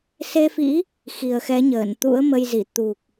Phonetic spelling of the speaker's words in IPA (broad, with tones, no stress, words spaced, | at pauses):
se˧fḭ˧˥ | xi˨˩ə̯xɛ˨˦ɲəː˧˩nt̪ṵ˧˥ə̯ mə˧jzi˧˩ t̪u˨˩k̚